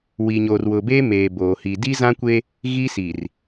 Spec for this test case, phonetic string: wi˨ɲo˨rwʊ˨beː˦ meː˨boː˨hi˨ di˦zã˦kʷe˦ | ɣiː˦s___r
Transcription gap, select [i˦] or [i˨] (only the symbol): i˨